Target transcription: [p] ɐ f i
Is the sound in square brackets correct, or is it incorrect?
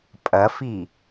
incorrect